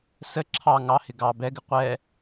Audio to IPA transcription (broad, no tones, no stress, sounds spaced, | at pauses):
s ə ǁʰ ɑ ŋ ɑ h ɪ ɡ ɑ b ɛ ɡ ɪ qʷ ɛ